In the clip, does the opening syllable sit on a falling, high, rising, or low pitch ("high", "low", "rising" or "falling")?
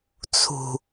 low